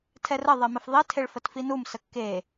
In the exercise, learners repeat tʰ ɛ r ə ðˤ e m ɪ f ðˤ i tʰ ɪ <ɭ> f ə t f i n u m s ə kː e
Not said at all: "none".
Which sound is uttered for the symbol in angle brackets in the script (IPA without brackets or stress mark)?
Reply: ɭ